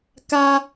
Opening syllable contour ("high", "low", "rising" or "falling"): high